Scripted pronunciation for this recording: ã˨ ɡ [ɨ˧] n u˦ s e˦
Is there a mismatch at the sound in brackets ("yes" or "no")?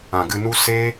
no